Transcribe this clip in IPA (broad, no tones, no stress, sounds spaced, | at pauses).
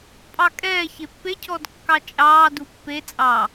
pʼ ɑ kʼ ɛː ç e pː e cʰ ɔ d kː ɑ t͡ʃʼ ɑː d u pː e t͡sʼ ɑ